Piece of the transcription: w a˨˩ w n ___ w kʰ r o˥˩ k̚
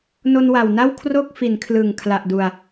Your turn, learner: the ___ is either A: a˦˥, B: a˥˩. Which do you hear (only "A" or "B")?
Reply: B